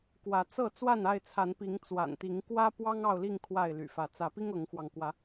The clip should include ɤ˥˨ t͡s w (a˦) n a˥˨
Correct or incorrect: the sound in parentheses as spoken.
incorrect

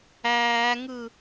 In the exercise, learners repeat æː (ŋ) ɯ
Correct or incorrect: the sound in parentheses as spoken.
correct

